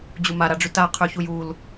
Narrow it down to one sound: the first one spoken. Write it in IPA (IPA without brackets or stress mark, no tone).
d͡ʑ